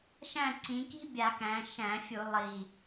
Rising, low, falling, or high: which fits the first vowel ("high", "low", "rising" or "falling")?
falling